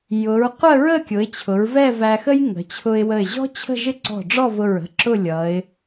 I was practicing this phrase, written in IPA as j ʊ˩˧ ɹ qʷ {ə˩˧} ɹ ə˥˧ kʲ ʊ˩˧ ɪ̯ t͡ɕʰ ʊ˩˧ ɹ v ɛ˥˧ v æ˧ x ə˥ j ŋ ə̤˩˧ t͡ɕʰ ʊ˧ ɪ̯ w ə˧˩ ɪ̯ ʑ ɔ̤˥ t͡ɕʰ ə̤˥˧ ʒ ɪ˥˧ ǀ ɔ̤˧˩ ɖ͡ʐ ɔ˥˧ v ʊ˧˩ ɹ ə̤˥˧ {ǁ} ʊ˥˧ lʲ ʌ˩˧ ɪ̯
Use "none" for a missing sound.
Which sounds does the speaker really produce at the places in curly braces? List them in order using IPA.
ə˥˧, ǁ

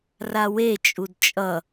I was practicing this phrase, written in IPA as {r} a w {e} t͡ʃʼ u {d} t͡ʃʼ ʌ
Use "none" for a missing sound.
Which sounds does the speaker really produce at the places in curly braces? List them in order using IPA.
r, e, d

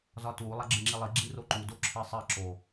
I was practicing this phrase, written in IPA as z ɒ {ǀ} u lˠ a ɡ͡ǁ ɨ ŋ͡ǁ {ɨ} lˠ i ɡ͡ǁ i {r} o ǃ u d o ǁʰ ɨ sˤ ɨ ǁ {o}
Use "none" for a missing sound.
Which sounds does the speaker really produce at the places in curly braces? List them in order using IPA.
t, i, r, o

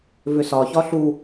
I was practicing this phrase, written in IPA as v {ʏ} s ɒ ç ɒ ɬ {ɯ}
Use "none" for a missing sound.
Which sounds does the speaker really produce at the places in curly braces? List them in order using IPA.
ʏ, u

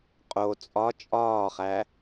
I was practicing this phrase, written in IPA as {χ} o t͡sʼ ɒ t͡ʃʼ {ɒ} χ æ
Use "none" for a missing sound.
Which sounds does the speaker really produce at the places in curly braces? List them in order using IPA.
qʼ, ɒː

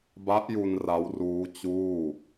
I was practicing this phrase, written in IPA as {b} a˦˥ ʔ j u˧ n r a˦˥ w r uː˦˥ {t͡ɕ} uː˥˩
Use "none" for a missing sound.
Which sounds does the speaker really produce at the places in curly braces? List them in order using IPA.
b, t͡ɕ

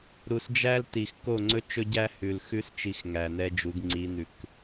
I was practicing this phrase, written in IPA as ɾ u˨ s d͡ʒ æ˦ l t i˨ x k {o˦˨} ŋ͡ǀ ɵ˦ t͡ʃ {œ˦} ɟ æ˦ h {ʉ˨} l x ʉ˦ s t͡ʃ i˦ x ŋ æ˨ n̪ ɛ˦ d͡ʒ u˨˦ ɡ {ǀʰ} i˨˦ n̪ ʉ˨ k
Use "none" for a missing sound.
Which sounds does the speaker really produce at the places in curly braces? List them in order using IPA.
o˦˨, ɵ˦, ʉ˨, ŋ͡ǀ

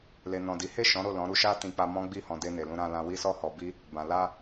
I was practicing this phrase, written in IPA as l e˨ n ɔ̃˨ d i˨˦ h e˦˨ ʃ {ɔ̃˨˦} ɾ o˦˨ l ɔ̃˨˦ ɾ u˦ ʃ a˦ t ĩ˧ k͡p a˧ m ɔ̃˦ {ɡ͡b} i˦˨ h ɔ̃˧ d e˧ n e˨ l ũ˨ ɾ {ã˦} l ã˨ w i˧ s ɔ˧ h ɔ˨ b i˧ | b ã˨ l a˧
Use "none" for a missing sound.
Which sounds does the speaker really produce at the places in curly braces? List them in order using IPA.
ɔ̃˨˦, ɡ͡b, ã˨

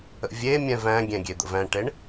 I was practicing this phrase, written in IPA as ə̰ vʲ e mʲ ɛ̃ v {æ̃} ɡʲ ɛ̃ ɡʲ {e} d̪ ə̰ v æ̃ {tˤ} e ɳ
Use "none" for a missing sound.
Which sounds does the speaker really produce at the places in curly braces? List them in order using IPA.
æ̃, e, ʈ

